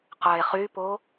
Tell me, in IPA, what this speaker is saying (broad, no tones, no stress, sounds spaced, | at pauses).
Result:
q œ e̯ χ y p o